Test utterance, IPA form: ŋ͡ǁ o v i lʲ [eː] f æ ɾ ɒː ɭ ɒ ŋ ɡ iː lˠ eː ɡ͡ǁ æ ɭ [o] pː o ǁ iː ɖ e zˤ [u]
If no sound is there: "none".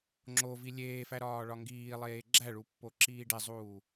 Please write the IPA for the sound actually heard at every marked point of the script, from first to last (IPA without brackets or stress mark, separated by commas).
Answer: eː, u, uː